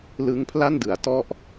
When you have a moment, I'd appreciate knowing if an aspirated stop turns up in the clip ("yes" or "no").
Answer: yes